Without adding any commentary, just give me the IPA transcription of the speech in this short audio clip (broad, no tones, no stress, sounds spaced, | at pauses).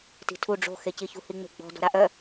t i̤ tʰ u ɖ͡ʐ o̤ x e c i ç ṳ h i ŋ͡m e̤ ɡ͡b ɔ̤ d ɔ̤ ɾ a ʔ œ